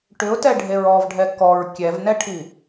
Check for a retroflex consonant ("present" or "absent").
present